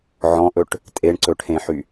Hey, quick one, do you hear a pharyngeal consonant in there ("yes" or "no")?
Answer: yes